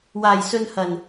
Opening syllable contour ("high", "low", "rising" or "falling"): low